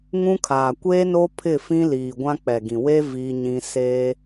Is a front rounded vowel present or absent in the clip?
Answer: absent